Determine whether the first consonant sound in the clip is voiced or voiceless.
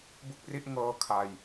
voiced